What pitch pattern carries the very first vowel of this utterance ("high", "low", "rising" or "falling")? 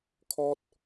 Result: high